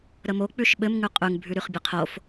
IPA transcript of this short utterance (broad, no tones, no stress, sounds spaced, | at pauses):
ɾ ə m o k͡p ʉ ʃ ɓ ɘ m ŋ ʉ qʼ ʉ ŋ bʱ ʉ ɾ y χ bʲ ɘ qʰ o f